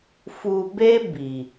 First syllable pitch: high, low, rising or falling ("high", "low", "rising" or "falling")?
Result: low